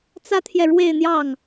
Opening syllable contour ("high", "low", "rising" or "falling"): high